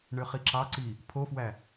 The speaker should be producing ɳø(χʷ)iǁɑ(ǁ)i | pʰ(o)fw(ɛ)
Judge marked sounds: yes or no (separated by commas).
no, no, yes, no